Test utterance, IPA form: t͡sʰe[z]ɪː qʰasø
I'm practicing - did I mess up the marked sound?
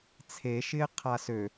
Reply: yes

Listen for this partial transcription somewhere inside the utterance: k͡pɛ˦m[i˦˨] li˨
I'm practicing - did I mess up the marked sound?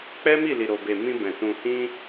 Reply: no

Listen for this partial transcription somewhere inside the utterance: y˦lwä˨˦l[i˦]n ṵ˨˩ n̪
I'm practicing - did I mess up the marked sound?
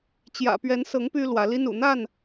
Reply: no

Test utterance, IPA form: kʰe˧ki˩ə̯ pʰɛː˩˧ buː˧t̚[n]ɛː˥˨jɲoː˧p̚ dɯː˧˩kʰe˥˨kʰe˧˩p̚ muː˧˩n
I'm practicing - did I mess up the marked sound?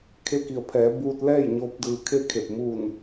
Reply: yes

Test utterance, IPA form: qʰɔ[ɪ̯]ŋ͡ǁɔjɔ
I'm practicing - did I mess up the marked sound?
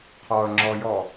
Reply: yes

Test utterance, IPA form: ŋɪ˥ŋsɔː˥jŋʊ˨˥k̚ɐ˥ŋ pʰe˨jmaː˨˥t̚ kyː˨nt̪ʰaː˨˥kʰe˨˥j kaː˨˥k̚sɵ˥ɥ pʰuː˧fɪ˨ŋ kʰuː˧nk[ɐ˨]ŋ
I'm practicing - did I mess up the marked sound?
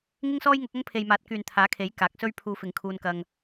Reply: yes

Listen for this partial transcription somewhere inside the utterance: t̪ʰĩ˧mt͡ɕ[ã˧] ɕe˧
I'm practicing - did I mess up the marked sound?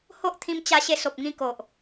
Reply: yes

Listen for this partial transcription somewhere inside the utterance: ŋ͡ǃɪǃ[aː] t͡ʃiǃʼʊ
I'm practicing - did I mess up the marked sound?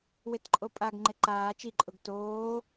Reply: no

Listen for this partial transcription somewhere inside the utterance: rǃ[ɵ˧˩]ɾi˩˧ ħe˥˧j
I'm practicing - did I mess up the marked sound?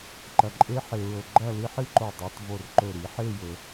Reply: no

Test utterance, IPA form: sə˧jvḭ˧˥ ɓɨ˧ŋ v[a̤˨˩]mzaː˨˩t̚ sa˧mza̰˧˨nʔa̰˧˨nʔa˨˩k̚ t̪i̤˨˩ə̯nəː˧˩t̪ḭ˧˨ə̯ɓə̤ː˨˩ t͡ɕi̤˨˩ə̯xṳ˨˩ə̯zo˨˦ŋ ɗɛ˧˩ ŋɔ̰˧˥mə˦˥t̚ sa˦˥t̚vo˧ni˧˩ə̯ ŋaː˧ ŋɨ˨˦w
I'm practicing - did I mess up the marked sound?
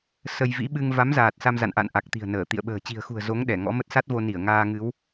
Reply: yes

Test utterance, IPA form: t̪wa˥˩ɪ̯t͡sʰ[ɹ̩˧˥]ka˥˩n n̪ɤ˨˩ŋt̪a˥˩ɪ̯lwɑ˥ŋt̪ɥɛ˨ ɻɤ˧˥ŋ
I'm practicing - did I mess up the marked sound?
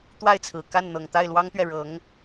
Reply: yes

